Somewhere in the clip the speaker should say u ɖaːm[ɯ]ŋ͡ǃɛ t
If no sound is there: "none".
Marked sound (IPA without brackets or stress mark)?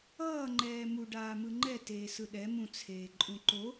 ɯ